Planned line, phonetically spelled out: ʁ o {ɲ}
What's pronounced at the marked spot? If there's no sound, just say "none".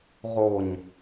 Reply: ɲ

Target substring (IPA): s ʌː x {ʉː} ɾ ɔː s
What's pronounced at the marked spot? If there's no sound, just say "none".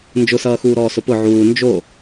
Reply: uː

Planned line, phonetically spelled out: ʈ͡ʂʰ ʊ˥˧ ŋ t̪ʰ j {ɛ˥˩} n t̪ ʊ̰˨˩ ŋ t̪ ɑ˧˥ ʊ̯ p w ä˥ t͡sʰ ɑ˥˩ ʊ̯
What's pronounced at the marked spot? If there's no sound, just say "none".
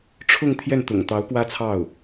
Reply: ɛ˥˩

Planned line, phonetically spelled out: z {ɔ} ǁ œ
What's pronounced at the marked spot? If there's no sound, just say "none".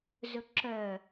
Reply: ɵ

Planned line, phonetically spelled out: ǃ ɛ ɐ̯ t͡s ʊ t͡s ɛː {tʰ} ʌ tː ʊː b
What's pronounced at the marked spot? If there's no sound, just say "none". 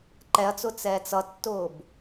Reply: t͡s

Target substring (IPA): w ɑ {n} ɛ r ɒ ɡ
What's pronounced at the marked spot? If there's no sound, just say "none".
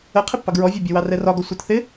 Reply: r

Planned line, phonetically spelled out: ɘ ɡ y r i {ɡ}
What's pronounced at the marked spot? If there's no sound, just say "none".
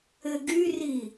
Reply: none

